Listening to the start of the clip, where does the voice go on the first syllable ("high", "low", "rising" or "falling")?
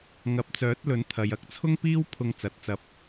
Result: low